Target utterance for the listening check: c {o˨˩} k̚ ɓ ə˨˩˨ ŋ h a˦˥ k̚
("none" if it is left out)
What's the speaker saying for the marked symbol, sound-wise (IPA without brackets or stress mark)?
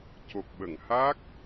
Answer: o˨˩